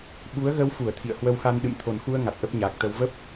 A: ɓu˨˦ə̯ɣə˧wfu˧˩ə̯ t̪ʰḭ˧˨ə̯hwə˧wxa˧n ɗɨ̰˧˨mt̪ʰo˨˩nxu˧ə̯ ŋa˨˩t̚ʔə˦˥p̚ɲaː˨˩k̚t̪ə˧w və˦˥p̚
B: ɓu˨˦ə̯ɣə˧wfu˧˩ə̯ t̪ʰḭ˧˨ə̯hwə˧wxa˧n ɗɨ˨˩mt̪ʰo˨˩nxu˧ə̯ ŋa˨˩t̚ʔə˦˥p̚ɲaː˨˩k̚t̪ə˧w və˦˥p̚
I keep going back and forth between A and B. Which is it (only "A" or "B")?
A